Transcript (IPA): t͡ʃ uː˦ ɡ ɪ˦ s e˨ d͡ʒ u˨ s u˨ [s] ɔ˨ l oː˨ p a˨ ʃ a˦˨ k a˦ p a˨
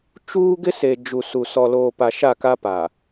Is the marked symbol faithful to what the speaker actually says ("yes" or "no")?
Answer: yes